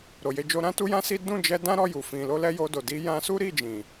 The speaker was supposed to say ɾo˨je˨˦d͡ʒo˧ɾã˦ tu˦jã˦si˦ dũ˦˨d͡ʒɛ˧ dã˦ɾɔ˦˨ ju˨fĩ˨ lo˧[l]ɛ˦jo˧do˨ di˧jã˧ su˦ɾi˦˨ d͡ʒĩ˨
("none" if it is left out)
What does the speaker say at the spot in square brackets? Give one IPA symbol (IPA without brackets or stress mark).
l